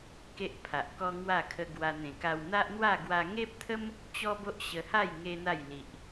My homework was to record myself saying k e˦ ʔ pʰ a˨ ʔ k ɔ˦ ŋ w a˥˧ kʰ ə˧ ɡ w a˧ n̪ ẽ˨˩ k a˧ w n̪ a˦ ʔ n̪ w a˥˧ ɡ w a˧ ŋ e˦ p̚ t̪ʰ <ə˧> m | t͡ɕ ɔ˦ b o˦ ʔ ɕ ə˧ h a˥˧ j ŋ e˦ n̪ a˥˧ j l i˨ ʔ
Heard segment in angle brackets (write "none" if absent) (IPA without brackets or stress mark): ə˦